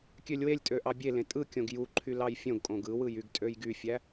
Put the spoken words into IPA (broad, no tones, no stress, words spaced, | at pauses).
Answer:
kʲølʲwelʲtʼø ʔɑbʲe lẽtʼɯkʲõɡ juǃʰy lɑjfʲõɡkʼõɡ ɯwɯjyɡ tʼøjɡyfʲæ